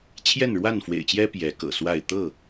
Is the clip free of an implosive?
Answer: yes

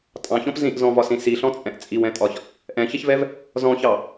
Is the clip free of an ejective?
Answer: no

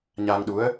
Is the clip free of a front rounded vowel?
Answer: yes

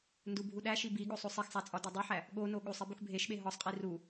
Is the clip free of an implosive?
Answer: no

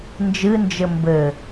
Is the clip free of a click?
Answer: yes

